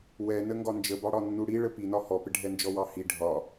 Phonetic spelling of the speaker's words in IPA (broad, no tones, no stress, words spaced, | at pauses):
wɛnə ŋɡɒnd͡ʒəbɑɽɒ nːuɽi ɭəpinɒ hɔpɪɖʱɛnd͡ʒɔ wɑhi ɖʱɒ